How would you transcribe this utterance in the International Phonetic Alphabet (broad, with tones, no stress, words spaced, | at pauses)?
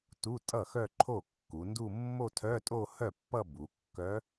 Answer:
tu˧˥˧tʼʌ˥˩ xœ˥˧ǃʰo˥˩kːu˩˧ndu˥˧ mːo˥˧tʰœ˧˥˧tʼo˥˧ hœ˥˩pːʌ˥˧ bu˩˧kːœ˧˥